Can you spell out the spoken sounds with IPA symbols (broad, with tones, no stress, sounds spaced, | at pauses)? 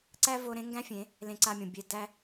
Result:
ǀ æ˦ v o˧ ɾ ẽ˦ ŋ ɡ æ̃˦ fʲ ẽ˨˦ | l ẽ˧ ǀ a˧ mʲ õ˨ bʲ e˧ d æ˧